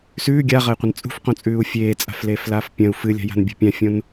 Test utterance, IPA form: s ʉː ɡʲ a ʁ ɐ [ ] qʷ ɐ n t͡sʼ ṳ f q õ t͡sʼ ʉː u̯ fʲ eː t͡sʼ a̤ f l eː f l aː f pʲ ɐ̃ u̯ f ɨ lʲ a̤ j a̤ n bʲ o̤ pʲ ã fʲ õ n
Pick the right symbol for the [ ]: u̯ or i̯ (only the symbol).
i̯